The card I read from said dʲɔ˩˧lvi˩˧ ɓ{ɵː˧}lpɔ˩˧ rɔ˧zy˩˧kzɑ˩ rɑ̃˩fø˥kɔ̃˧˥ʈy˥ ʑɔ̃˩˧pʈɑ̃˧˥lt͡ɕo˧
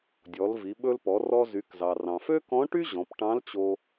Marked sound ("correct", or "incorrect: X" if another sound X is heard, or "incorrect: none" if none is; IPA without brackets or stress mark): incorrect: ɵ˧